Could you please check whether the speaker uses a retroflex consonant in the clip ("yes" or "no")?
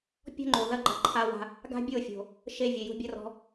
no